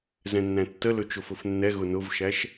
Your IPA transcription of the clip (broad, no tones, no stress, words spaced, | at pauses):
zɛ̃nːæ̃tːə lɵt͡ʃʊfɵfnːɛ ɣʊnʊvʃæʃ